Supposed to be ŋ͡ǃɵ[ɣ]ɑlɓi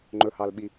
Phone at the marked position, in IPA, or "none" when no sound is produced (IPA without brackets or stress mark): h